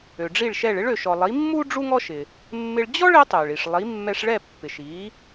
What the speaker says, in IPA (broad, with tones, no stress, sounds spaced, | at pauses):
ø˩ ɖ͡ʐ i˥˩ ɭ ʃ ɛ˥˩ ɭ ɪ˥ ɭ ø˩ ʃ ɔ˩ lˠ i˩˥ mː u˥ ɖ͡ʐ u˥ ŋ ɔ˥ ʃ ɪ˩ | mː ɪ˧ ɭ d͡ʑ ɔ˥ ɭ ɪ˩˥ tˤ ø˩ ɭ i˩ ʂ lˠ i˩˥ mː ɛ˧ ʂ ɭ ɛ˥˩ pː ɪ˩ ʃ i˩˥